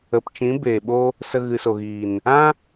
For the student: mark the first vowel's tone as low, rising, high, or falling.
low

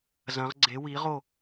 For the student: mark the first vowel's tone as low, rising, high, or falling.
rising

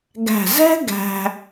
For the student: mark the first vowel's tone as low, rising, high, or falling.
low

